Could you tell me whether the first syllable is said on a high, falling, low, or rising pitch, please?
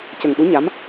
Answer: low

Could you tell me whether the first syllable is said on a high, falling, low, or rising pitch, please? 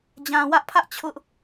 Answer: low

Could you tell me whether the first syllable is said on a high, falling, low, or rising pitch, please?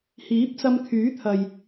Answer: rising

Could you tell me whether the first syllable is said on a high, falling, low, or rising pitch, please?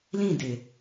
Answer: falling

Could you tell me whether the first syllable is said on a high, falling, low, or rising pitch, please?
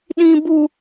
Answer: high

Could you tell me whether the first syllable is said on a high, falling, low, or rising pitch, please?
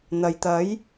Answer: low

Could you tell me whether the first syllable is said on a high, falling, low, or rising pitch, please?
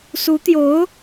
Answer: rising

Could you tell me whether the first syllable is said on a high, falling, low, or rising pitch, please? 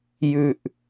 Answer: low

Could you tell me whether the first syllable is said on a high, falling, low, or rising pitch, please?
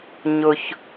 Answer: low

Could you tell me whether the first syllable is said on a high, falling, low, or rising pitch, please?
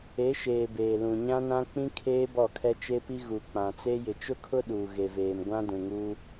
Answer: rising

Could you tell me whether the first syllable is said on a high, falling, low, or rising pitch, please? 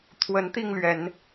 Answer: rising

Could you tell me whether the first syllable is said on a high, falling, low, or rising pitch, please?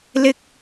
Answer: high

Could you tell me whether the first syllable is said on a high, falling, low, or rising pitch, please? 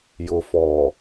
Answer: low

